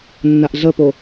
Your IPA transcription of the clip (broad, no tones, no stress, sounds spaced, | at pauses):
nː a ʔ ɮ ə p o